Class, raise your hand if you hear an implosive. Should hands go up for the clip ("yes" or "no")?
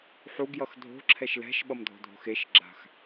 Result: yes